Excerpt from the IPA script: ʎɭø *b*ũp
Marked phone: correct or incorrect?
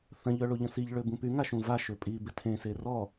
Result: correct